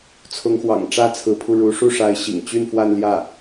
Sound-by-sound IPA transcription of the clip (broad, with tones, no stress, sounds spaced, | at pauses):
t͡sʰ ʊ˧˥ ŋ x w ɑ̰˨˩ ŋ ʈ͡ʂ ä˥ t͡sʰ ɹ̩˧˥ pʰ u˧ ɻ u˧˥ ʂ u˥˩ ʂ a˧˥ ɪ̯ ɕ ḭ˨˩ ŋ t͡ɕ y˥˧ n f w a˥˧ n l j ä˥˩